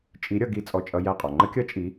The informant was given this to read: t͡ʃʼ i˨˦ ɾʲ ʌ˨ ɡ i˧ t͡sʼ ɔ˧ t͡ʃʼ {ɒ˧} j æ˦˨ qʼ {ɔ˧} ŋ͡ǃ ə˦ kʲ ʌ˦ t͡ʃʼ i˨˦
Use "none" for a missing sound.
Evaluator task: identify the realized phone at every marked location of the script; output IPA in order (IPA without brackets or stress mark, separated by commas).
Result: ʌ˧, ɔ˨